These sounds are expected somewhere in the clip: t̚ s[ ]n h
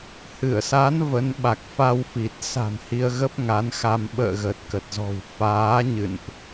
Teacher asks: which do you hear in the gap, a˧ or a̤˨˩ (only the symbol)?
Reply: a̤˨˩